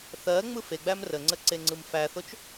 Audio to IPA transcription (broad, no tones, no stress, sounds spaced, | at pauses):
θ ɜ ŋ͡m ɯ f e ɡ͡b æ m r ə ŋ͡ǀ ə ǀ e ŋ͡ǀ ɯ m f æ θ o t͡ʃ